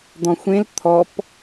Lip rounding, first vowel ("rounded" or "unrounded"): rounded